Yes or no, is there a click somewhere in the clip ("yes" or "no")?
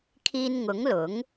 no